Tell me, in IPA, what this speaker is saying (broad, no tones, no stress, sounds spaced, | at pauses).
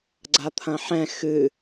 ɡ͡ǀ a t̪ʰ ɐ̃ ħ ɛ̃ x ɨ